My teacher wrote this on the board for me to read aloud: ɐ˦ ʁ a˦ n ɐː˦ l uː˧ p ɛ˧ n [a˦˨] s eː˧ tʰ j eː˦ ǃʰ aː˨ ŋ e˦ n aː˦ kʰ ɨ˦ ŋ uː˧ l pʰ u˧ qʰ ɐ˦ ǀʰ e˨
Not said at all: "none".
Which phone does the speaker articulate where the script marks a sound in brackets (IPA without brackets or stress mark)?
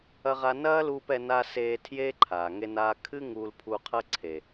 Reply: a˧